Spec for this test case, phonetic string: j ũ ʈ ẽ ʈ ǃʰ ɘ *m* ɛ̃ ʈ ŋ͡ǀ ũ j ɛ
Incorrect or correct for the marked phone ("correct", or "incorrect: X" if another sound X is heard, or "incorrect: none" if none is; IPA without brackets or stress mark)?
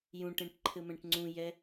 correct